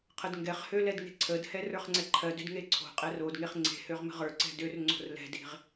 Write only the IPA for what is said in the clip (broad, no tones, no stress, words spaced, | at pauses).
qʰədŋɡɛχhø lɛdŋe̤ǀʰədhɛ rə˞χŋ͡ǀɛǃʰɜdød ŋeǀʰo̤qʼɛr odŋeχ ŋ͡ǀe̤høʁ mə̤ʁə˞ǀɛ̤d ør ŋ͡ǀo̤rlɛ̤de̤ʁ